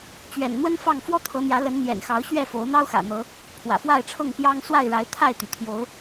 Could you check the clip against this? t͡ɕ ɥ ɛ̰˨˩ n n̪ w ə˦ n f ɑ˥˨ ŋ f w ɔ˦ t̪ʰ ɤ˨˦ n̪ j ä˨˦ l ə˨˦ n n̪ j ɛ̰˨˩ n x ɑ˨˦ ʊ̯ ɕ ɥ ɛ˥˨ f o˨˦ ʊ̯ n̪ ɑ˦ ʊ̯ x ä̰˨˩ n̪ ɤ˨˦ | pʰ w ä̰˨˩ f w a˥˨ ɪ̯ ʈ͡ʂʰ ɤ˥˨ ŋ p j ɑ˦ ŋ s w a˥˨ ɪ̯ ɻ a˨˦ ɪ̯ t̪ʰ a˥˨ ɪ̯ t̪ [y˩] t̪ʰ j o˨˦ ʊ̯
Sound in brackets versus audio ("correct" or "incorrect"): correct